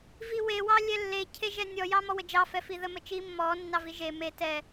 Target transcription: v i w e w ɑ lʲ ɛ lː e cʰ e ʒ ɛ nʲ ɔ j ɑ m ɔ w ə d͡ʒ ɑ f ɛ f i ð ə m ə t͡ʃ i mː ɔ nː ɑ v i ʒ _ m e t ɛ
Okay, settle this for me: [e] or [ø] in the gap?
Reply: e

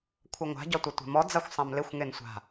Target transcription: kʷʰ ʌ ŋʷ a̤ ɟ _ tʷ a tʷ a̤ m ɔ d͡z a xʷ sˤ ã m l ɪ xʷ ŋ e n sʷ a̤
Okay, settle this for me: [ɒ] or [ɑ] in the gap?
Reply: ɒ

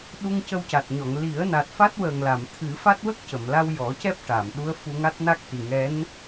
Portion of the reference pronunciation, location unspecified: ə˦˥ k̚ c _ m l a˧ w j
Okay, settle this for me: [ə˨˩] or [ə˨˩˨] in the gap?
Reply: ə˨˩˨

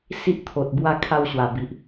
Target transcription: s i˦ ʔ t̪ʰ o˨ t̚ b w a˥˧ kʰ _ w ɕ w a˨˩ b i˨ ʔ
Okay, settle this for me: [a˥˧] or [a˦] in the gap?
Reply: a˥˧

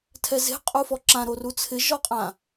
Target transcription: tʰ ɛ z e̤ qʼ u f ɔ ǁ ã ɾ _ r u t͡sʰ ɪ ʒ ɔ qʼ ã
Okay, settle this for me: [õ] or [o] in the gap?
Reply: o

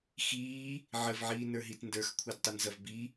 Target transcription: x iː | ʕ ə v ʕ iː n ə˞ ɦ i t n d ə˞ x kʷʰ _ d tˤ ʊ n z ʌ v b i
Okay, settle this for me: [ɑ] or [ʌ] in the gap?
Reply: ɑ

